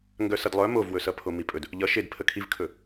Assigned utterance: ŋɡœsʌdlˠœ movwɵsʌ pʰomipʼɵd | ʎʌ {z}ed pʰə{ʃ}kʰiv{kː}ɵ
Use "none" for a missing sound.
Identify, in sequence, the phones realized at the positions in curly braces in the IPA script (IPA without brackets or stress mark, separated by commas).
ʃ, none, kʰ